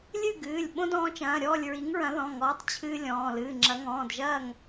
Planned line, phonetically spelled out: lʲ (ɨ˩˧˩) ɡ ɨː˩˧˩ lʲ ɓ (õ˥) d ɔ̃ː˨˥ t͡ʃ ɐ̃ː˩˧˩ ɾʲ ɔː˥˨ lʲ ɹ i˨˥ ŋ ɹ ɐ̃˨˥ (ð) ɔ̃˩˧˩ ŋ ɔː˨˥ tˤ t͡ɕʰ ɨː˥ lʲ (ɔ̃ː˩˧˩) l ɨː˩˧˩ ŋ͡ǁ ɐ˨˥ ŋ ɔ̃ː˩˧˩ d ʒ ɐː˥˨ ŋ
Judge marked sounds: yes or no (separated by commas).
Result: no, yes, yes, yes